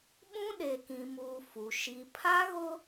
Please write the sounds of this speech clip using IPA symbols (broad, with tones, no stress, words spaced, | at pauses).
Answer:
ɓũ˦ɗe˨kĩ˨muː˨ fu˨ ʃi˨ pʰa˦ ɣʊ˦